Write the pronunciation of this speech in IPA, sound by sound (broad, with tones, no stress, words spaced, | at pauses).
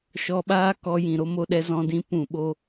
ʃɔ˧ɓaː˦ kɔ˧jĩ˨ɾo˦ mo˧ɗɛ˧zɔ̃˧ dĩ˨˦ pũ˨ɓo˧